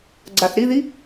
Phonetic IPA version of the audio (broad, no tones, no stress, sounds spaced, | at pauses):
ɡ͡ǀ a θ ɾ i ð i